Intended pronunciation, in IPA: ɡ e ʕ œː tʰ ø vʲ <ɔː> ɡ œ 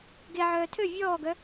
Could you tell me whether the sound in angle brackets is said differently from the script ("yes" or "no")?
no